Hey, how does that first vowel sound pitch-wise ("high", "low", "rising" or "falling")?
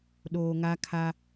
low